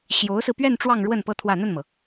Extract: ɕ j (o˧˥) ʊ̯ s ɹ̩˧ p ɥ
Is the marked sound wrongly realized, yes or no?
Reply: no